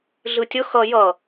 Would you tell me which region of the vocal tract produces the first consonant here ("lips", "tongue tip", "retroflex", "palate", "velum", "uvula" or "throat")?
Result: tongue tip